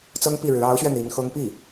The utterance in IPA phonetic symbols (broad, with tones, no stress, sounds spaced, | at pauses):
t͡s ɤ˥ ŋ p i˥˩ ɻ ɻ̩˧˥ ɑ˧˥ ʊ̯ ɕ ɥ ɛ˧ n̪ i˧˥ n x ɤ˥ ŋ p i˥˩